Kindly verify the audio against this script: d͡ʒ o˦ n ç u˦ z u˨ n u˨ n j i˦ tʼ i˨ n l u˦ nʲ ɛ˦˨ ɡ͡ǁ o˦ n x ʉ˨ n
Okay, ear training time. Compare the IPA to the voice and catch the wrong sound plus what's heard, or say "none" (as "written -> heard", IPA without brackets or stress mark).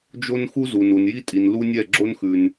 ç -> x